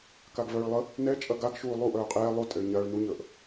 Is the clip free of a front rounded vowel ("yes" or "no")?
no